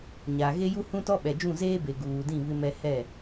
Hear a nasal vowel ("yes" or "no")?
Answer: yes